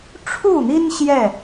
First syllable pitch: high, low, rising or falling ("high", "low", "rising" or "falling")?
falling